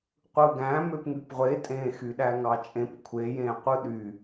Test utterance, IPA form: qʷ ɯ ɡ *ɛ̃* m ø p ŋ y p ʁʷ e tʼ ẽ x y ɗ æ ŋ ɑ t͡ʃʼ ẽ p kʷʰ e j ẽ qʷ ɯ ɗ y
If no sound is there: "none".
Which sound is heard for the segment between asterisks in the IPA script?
æ̃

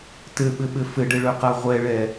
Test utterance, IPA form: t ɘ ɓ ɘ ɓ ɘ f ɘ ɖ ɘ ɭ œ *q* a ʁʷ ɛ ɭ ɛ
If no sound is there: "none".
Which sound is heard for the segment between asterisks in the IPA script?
q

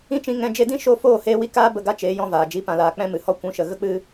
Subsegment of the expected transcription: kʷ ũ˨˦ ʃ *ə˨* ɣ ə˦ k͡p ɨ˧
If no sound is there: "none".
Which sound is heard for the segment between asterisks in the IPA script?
ə˨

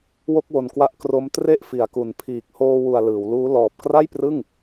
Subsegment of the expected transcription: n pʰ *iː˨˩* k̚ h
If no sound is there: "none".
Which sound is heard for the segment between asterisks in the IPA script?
iː˨˩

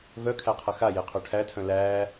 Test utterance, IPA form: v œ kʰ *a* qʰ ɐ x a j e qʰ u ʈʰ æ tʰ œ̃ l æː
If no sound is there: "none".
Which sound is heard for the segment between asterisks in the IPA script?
æ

